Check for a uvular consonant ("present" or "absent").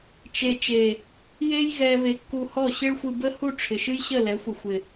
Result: absent